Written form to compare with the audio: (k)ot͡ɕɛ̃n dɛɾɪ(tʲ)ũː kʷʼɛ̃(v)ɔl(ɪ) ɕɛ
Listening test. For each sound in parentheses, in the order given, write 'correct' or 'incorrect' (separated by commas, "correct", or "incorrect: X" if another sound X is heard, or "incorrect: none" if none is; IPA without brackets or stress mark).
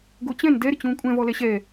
incorrect: ɡ, incorrect: t͡ɕ, correct, incorrect: ɛ